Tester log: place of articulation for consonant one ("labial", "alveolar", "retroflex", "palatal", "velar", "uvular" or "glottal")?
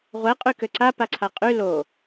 uvular